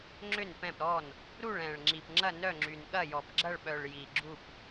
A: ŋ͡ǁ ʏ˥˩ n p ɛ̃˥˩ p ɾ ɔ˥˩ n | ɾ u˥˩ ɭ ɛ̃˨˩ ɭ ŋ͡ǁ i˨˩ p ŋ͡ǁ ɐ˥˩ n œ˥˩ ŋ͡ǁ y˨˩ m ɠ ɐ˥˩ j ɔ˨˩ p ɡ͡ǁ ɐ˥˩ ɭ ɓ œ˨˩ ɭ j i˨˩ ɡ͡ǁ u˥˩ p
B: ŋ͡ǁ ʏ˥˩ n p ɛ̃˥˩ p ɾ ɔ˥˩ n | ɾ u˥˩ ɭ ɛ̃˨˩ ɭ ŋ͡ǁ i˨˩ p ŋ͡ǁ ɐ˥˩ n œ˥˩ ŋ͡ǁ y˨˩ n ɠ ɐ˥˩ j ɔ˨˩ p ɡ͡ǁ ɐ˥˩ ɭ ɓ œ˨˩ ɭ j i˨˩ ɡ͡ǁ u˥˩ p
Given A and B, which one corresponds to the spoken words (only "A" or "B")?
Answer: B